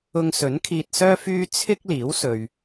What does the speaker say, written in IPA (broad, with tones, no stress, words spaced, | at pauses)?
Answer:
ʊ˧ŋsɵ˨˥nkʰiː˧t̚sœː˥ fyː˥ t͡sʰɪ˥k̚liː˨˥w sɵ˨ɥ